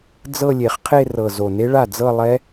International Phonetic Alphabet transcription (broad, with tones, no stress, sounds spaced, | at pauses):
d͡z ɤ˥˧ lʲ e˨˩ χ qʰ e˥˧ r ɤ˨˩ z o˨˩ n e˦˥ ɭ a˥˩ d͡z ɤ˥˧ lˠ ɛ˦˥